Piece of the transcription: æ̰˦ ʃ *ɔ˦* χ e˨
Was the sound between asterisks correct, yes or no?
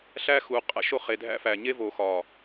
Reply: no